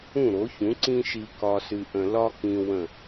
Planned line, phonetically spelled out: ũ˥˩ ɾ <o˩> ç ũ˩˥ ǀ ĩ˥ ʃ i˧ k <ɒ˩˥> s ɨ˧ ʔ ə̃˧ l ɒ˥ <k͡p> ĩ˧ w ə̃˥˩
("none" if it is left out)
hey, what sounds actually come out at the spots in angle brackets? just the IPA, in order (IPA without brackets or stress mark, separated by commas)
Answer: o˩˥, ɒ˧, k